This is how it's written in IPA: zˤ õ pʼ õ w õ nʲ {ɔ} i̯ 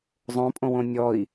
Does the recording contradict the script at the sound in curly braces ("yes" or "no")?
no